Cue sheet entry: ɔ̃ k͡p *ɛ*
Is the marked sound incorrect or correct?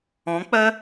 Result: incorrect